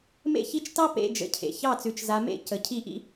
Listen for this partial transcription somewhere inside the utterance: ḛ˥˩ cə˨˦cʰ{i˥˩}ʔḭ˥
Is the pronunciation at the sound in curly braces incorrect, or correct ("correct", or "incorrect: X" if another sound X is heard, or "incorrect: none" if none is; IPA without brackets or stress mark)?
correct